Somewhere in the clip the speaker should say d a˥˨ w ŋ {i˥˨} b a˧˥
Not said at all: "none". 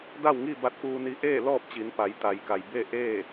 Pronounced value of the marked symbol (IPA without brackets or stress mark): i˥˨